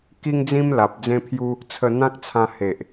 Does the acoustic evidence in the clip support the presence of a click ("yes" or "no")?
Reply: no